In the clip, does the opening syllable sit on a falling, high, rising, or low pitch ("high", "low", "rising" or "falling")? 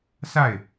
falling